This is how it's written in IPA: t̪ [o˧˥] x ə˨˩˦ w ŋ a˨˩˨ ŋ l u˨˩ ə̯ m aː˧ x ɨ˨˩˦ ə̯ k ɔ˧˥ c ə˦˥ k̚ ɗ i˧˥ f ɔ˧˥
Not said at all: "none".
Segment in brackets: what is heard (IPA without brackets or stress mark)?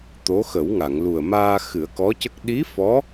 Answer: o˧˥